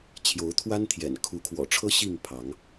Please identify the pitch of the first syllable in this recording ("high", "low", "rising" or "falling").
rising